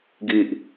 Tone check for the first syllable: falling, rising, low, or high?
low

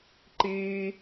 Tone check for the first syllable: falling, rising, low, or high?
high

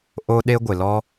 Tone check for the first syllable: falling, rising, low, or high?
high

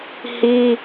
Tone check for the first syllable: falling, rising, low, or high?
high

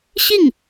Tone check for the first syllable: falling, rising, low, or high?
falling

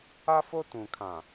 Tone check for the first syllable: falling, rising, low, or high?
high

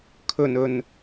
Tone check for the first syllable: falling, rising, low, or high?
low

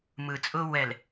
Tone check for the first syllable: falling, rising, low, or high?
low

